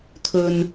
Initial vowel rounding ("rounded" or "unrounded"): rounded